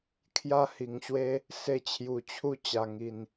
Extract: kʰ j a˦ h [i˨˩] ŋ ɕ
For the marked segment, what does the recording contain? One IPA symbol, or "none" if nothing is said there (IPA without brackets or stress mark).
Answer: i˨˩